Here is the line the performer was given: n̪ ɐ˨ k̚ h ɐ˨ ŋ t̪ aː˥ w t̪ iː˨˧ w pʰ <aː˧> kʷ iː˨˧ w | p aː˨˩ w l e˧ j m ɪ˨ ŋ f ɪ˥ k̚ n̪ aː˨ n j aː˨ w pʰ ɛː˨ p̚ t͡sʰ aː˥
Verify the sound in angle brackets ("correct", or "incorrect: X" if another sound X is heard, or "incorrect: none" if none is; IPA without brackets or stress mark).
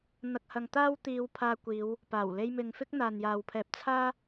correct